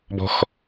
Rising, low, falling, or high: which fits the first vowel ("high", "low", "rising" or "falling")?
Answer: high